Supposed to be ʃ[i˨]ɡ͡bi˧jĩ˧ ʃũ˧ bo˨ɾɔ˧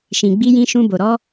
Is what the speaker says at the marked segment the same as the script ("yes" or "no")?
no